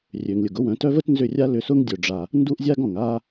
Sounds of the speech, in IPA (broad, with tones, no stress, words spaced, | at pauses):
rʲø˨ŋlʲʊ˨ɡʊ˦wœ̃˨˦ tœ˦və˦tnzʏ˦˨rʲa˦ lʏ˧sʊ˦ŋdʲœ˨ɖ͡ʐa˨ | ndu˦ʔzʲa˦ɡɔ̃˨ŋ a˧